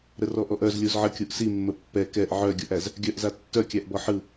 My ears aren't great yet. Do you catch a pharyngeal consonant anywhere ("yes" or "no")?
yes